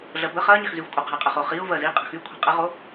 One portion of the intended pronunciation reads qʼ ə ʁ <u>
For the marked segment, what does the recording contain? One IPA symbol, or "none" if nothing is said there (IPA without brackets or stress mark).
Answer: o